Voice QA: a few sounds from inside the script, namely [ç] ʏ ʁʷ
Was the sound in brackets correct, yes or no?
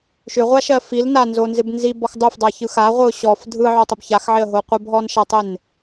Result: no